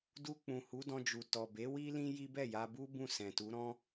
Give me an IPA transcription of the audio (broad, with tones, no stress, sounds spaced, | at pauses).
d u˧ k͡p ũ˨ h u˨˦ d ɔ̃˧ d͡ʒ u˨ t ɔ˨ b e˨˦ w i˦ l ĩ˦ j i˦ b ɛ˦˨ j a˧ b u˦ b ũ˦˨ s ɛ̃˨ t u˨˦ ɾ ɔ̃˦